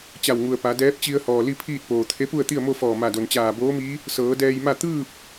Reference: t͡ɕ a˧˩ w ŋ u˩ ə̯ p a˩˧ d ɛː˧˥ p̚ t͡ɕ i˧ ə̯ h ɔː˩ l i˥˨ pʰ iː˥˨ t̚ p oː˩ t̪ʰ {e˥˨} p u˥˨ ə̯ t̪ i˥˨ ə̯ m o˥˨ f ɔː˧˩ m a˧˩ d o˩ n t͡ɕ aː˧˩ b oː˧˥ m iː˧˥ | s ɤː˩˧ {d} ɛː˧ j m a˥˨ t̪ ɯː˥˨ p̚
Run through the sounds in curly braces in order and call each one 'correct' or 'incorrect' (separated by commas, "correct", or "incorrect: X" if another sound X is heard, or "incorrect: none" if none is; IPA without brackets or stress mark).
incorrect: e˧˥, correct